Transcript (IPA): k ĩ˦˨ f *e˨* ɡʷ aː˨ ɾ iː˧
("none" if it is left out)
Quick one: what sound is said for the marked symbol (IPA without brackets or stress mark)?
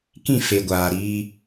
e˨